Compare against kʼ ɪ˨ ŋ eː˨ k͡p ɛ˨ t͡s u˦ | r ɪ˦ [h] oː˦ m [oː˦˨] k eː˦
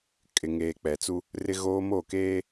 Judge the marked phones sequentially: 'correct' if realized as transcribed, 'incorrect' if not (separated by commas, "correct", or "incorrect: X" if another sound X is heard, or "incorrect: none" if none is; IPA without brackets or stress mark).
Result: incorrect: ɣ, correct